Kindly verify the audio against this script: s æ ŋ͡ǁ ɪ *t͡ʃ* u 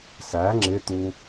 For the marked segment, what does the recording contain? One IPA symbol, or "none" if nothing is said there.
t̪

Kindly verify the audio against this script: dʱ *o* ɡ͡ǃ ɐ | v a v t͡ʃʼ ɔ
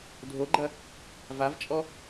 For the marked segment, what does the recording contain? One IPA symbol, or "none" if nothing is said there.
o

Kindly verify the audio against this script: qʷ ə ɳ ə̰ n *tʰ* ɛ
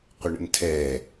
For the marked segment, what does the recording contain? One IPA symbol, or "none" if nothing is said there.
tʰ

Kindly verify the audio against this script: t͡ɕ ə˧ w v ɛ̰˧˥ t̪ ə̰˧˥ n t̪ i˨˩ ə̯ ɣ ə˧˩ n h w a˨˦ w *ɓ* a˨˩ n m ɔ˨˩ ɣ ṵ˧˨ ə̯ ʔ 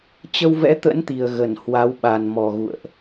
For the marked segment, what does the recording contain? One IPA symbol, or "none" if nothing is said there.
ɓ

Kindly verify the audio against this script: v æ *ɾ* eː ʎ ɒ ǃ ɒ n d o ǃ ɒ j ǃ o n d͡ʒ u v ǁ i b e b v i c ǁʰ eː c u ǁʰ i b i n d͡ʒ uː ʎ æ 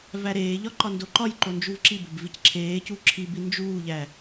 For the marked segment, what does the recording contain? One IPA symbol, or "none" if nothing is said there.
ɾ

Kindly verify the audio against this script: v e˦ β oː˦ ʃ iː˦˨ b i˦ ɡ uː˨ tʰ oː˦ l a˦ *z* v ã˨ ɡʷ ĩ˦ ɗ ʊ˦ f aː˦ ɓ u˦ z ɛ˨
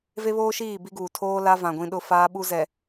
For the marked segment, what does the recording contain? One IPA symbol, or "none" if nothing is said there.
none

